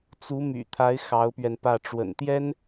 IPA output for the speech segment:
t͡s u˧˥ m y̰˨˩ t̪ʰ a˧˥ ɪ̯ x ɑ˧˥ ʊ̯ p ɥ ɛ˧ n p ä˥˩ ʈ͡ʂ w ə̰˨˩ n t̪ j ɛ˥ n

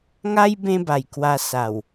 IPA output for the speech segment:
ŋ a˦ j b ẽ˦ b a˨˩ j k w a˧ s a˨˩ w

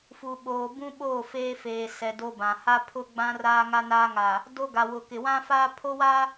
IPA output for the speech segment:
f u˨ ɓ oː˨ b ũ˦ ɓ oː˦˨ f eː˦ f eː˨ s ɛ˨ d o˦ b ã˨ h a˦ pʰ ʊ˦ ɡ͡b ã˦ r aː˦ ŋ a˦ n a˦ ŋ a˨ | d o˦ ɡ a˨ w ʊ˨ k ɪ˨ w ã˦ f a˦ pʰ o˦ w a˦

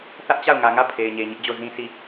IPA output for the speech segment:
θ ä˦ ʔ t͡ɕ a˦˨ ʊ̯ ŋ ä˨ ŋ ä˦˨ pʰ e˨ ɪ̯ ɲ e˨ ɲ ɪ˦ ʔ d͡ʑ o˦˨ z ĩ˦ s i˦˨

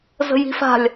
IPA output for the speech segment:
z ə̤ j i̤ f a̤ lʲ

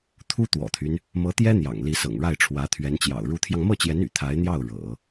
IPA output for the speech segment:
t̪ʰ u˥ t̪ w ɔ̰˨˩ t̪ʰ y˦ n | m ɤ˧˥ t̪ j ɛ˥ n̪ j ɑ̰˨˩ ŋ l i˧˥ s ɤ̰˨˩ ŋ ɻ a˥˩ ɪ̯ ʈ͡ʂʰ w ä˧˥ t̪ʰ ɥ ɛ˧˥ n t͡ɕ j ɑ̰˨˩ ʊ̯ ɻ u˧˥ t̪ʰ j ɑ˧ ŋ m ɤ˥˩ t͡ɕ j ɛ˧˥ n y̰˨˩ t̪ʰ a˧˥ ɪ̯ n̪ j ɑ˥˩ ʊ̯ ɻ ɤ̰˨˩˦

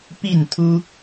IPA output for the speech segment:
p i˥˨ n t̪ʰ u˦

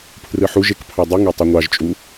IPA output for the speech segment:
pʰ r ɯ ħ u ʒ e k pʰ ɑ dˤ u ŋ ø tˤ y ŋʷ ɑ ʒ t͡ʃʼ u

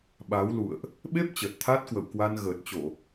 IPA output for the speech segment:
ɓ a˨˦ w l ṵ˧˨ ə̯ ʔ | ɓ e˦˥ p̚ t͡ɕ əː˨˩ t̚ t̪ʰ aː˦˥ t̚ k w ə̰˧˨ w k w a˧ n ɣ əː˨˩ t̚ t͡ɕ o˧˩˨

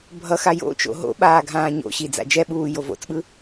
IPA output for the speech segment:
bʱ ʌ x a j o̰ t͡ʃ o̰ ɦ o̰ ɓ aː ɡʱ ãː ɲ o̰ ɕ i d͡z a̰ d͡ʒ ɛ ɓ uː j o v o̰ t͡s ɓ ɯ

